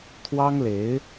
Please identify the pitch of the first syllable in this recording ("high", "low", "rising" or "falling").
high